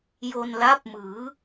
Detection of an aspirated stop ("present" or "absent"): absent